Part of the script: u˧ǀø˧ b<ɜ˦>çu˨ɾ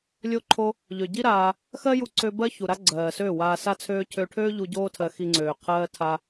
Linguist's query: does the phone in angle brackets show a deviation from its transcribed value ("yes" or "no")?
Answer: no